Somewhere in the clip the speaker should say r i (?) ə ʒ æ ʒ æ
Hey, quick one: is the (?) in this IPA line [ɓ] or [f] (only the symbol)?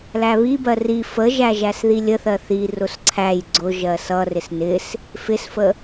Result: f